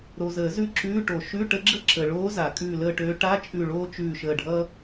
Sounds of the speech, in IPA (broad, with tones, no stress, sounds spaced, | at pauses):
ɾ o˨ z əː˨˩˦ z ʉ˦˨ ǁ ʉː˧˥˧ ʈ o˨˩˦ ʃ ʉ˧˥˧ ʈ ə˧˥ ɡ͡ǁ ə˥ ǁ ə˨ ɭ oː˧˥ z a˨˩˦ kʼ ʉː˦˨ l əː˦˨ ʈ øː˧˥ ʈ a˧˥˧ t͡ʃʼ ʉ˦˨ ɭ oː˥ t͡ʃ ʉː˦˨ ʃ əː˦˨ ɖʱ ʌː˥